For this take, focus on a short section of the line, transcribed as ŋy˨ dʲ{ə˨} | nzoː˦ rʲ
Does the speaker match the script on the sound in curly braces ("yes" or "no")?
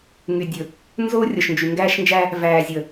no